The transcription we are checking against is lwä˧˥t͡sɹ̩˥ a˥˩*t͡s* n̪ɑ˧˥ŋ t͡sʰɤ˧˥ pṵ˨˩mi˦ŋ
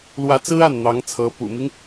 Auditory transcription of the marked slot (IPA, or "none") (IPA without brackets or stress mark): n